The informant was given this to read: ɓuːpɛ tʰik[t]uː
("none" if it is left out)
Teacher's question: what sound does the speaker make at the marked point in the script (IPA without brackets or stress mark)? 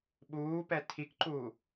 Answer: ǃ